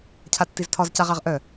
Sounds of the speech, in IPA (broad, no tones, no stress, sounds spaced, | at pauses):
cʰ a tː i z tʰ ɒ z c a ʁ a ʁ ʔ œ